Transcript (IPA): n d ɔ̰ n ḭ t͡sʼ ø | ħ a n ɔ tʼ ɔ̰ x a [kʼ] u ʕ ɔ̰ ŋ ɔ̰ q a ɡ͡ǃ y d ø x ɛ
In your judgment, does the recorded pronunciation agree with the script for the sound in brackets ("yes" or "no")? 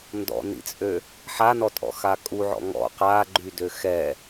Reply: yes